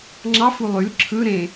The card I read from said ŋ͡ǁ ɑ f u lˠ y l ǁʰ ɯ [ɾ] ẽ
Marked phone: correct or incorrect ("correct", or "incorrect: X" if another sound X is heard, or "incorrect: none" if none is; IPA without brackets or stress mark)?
correct